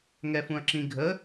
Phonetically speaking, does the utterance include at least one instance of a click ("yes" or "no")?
yes